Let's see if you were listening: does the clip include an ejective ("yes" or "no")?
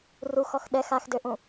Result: no